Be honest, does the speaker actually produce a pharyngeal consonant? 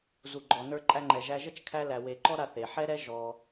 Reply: yes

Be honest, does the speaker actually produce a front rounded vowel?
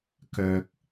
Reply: yes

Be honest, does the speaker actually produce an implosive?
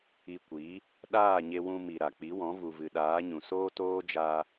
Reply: yes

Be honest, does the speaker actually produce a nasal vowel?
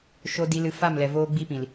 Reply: yes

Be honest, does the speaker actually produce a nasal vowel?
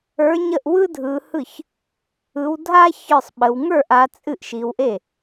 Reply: no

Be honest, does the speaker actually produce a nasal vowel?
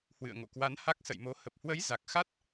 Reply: no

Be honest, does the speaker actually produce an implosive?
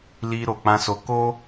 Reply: no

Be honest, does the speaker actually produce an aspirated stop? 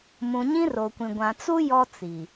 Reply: no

